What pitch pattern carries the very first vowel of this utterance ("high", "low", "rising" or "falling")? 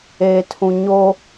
low